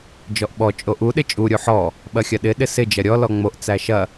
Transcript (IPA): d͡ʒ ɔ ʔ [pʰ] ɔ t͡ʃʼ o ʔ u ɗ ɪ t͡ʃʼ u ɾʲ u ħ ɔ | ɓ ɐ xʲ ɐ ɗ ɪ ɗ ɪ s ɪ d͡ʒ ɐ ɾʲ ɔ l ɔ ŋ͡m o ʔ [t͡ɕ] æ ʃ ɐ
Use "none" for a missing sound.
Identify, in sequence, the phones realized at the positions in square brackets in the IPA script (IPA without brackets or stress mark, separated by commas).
ɓ, t͡s